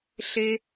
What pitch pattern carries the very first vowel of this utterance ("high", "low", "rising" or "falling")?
high